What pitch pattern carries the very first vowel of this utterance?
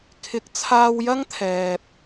rising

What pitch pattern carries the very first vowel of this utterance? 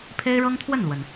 high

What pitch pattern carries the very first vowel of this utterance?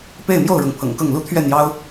falling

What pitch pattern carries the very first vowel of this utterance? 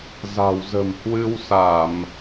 low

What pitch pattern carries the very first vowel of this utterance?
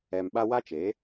low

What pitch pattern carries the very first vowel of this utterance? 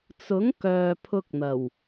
rising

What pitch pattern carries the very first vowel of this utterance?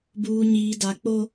low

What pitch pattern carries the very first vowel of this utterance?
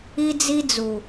high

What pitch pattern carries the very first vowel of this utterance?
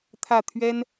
falling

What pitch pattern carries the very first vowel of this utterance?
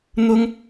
high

